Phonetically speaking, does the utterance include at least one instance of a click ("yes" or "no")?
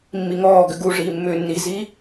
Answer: no